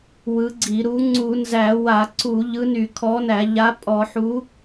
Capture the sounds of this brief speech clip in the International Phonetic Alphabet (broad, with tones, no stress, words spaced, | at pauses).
wɯ˨˥ɡ͡ǀi˧˩˧ɾu˨˥ ŋ͡ǀu˧˩˧nzæ˧˩˧wa˧˩˧ ǀu˧˩˧ ʎɯ˨˥ny˧˩˧kʰɔ˨˥næ˧˩˧ ʎa˨˥ pʼɔ˧˩˧ħu˨˥